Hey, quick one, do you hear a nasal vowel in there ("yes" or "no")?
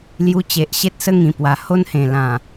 yes